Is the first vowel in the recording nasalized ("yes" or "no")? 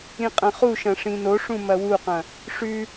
yes